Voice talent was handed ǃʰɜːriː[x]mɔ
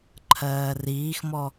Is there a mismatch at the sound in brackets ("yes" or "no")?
no